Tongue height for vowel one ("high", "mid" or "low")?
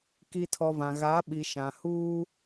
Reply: high